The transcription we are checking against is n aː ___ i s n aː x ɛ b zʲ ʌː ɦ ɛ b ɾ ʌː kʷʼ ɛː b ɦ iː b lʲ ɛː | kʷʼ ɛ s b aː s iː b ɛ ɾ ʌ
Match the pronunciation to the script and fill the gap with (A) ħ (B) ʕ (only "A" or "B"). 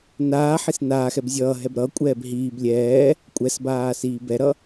A